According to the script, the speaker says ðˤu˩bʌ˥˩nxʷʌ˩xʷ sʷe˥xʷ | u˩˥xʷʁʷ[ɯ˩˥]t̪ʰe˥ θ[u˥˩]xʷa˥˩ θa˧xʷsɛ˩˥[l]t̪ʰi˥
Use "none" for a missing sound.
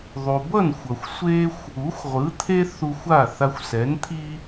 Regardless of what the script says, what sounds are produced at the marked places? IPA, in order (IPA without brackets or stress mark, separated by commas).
ɯ˩˥, u˧, n